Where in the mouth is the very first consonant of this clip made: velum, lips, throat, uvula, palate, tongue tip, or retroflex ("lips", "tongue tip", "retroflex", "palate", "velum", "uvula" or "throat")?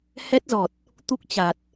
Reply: throat